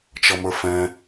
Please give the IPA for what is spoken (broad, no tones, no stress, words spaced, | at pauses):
t͡ʃʌmə˞fɛ̃